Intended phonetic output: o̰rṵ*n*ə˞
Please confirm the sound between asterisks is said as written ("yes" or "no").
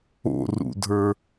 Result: no